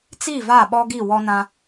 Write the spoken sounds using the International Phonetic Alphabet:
t͡si˦˨va˦˨ɓɔ˦ɡi˦˨ wɔ˦nã˦

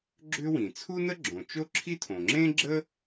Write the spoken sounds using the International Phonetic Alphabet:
ɡ͡ǁʏ˥wĩ˩ t͡sʰu˥nə˥ ɡ͡ǁõ˩t͡ʃo˥ǁʰi˥tʰõ˩ ŋ͡ǁẽ˥ɡ͡ǁə˥

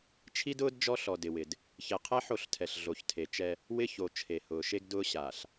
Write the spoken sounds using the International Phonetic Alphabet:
t͡ʃʰi˦dʊː˦d d͡ʒɔ˦ɬɔ˨ dɪ˨wɪ˨d | çɛ˨qʰɛ˦ ħo˦˨ɬtʰɛ˨ɬ ɮo˨çtʰe˨t͡ʃɛ˦ | wɪ˦ ço˨ t͡ʃʰe˨hʊː˨ ʃe˦ɡdʊː˦ ɕaː˨ɬ

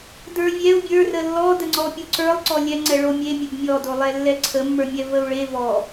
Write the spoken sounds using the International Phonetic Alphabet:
də˞vʲɛu̯ bʲə˞rə lːɔdəŋ͡ǀɔpʲo ǀə˞lˠ ǀɔlʲɛŋ͡ǀɛ ɭomʲe mʲəbmʲɔdolˠɛ lːɛǀʰəmːə˞mʲɛ vəu̯ɭe vɔ

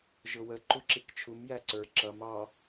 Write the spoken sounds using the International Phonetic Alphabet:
ʒʊwə ǃuǁikt͡ʃʰum jæǀə˞ ǁʌm ɑ

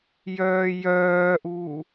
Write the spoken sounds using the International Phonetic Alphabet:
jœːjœːʔuː

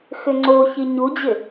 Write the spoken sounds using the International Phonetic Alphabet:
xʏŋ͡ǀo çiɲud͡ʑɪ

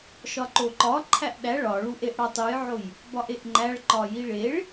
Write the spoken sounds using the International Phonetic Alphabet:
ʃɒǃoǃɒ ǃʰæʔɗæ ɭɒɭuʔeʔ ɽɒtˤujʕoj | bɒʔeʔŋ͡ǃæɭ ǃɒjiɭeɭ

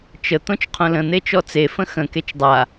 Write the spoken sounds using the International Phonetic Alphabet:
t͡ʃə t̪õt͡ʃqʰõlə̃ n̪et͡ʃɔt͡se fə̃xə̃ ket͡ʃdˤa

